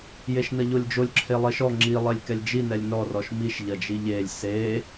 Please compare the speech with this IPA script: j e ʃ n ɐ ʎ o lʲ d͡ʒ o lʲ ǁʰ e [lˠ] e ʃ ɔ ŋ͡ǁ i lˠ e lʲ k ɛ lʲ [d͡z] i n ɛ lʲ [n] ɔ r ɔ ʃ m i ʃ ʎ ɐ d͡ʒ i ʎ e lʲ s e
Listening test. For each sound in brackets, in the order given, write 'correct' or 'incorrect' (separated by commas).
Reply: correct, incorrect, correct